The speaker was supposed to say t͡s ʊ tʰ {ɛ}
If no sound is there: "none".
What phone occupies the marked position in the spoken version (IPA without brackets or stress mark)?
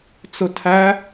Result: æ